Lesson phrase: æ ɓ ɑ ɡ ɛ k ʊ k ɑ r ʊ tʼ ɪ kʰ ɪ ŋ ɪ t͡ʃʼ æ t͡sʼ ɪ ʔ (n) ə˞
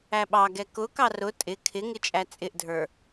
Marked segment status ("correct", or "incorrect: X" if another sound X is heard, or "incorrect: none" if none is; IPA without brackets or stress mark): incorrect: dʱ